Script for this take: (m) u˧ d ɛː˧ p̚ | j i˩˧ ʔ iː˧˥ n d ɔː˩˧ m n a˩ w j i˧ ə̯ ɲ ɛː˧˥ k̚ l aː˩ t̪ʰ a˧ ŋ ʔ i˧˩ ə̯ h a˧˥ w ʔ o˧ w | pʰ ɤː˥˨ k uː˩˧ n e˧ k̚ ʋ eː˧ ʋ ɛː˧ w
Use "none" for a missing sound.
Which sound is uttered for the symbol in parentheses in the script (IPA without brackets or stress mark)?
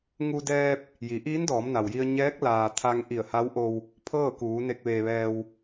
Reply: ŋ